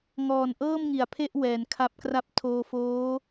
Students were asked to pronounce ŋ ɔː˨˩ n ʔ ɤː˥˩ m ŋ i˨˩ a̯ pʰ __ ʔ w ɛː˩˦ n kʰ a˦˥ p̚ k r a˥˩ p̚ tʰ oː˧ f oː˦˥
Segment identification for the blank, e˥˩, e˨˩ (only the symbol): e˥˩